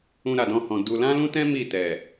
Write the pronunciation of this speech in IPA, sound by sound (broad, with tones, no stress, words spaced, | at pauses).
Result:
ũ˧ɾa˨dɔ̃˧hɔ̃˨ du˧ lã˦lũ˦tɛ̃˦ mi˦˨tɛ˨